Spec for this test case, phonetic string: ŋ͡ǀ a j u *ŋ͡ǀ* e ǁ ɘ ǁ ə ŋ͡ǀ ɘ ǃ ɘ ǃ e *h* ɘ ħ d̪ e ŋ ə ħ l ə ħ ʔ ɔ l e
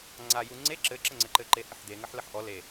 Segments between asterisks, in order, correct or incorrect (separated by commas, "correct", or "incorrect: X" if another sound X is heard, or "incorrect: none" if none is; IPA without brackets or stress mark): correct, correct